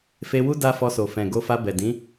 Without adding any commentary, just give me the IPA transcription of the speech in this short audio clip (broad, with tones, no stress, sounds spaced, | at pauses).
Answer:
f e˧ w u˦ d a˦ f ɔ˧ s o˨ f ɛ̃˨ ɡ o˧ f a˧ b ɛ˨ d ĩ˨˦